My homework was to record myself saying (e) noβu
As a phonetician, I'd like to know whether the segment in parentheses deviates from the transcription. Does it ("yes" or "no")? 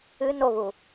yes